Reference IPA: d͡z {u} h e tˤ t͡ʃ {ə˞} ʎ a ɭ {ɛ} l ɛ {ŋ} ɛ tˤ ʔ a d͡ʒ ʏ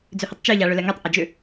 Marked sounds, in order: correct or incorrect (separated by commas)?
incorrect, correct, incorrect, correct